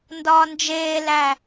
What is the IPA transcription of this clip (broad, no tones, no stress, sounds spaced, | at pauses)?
n d ɒː n d͡ʒ eː l æ